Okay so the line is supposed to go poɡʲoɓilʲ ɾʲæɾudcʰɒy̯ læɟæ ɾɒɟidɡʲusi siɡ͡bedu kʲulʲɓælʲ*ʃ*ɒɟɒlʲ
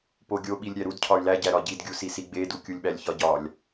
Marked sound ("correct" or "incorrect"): incorrect